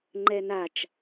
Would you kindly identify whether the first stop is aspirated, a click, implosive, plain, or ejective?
click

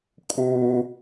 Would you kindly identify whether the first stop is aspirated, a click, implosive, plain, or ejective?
ejective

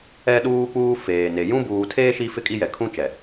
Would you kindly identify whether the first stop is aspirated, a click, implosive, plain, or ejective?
implosive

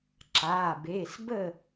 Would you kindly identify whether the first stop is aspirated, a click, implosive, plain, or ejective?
click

